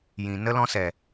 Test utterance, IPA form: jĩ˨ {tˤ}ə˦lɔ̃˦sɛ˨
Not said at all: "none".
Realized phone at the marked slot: n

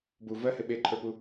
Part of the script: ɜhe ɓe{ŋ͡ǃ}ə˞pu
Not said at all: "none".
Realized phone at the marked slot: ǃʰ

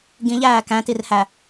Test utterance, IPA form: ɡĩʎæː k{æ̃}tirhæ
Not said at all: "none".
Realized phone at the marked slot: æ̃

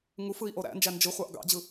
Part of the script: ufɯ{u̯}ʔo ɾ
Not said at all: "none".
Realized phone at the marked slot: i̯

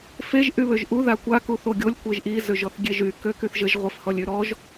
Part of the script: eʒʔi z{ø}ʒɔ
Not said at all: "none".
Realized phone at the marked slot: ø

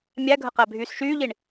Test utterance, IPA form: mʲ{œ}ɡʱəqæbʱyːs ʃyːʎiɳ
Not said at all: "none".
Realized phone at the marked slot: æ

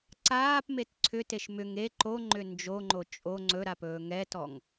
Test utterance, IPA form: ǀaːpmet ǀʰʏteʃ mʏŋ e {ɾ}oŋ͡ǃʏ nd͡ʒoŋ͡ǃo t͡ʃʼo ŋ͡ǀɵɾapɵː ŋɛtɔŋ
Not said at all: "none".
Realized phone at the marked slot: ǃ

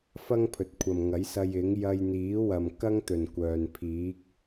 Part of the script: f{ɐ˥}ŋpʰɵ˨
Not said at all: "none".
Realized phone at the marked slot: ɐ˥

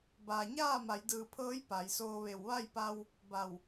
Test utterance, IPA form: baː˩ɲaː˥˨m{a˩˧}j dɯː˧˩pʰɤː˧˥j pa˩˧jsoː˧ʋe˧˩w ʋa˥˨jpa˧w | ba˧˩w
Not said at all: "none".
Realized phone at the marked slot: a˩˧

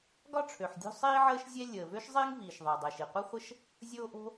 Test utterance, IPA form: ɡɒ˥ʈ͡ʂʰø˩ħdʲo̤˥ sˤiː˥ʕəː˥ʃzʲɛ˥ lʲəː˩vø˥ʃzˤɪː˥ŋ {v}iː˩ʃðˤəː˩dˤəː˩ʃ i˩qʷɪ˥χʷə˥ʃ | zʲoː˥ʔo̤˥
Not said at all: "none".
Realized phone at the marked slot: v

